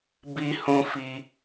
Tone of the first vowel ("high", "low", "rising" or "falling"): high